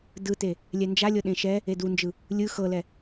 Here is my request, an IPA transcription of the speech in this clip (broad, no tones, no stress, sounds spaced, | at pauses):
d ɯ t e | lʲ ɛ n d͡ʒ a lʲ ɤ ɗ ẽ ʃ ɛ | e d u n d͡ʒ ɯ | lʲ ɯ x ɤ l ɛ